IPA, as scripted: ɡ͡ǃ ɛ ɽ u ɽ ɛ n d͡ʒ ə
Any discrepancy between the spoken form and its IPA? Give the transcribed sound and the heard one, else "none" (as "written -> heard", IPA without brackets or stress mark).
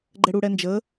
none